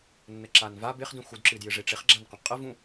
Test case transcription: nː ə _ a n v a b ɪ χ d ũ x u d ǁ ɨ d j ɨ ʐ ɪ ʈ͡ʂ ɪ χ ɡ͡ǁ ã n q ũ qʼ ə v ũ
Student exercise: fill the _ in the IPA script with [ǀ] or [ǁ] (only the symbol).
ǁ